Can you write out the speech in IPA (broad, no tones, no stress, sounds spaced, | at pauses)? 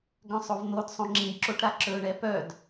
ɡ œ̃ sˤ o v n̪ o d sˤ õ ŋ͡ǁ ĩ b ǁ o ʈ ɾ a ǁ ɵ ɳ ɛ p œ d